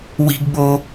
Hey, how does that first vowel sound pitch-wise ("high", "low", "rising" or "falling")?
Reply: high